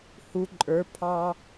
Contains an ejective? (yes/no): yes